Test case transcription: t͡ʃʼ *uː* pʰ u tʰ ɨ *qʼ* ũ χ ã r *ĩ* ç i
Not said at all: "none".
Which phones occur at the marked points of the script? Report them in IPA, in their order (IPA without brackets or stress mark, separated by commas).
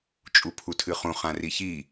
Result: u, χ, i